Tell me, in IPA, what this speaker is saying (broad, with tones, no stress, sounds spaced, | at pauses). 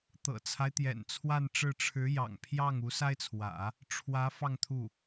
t̪ ɤ̰˨˩ t͡sʰ a˦ ɪ̯ t̪ j ɛ̰˨˩ n t͡sʰ w a˥˧ n ʈ͡ʂ ɻ̩˥˩ ʈ͡ʂʰ ɻ̩˧˥ j ɑ̰˨˩ ŋ pʰ j ɑ˥˩ ŋ u˧˥ s a˥ ɪ̯ t͡sʰ w ä̰˨˩˦ | ʈ͡ʂʰ w ä˧˥ f ɑ˥˧ ŋ t̪ʰ u˥˩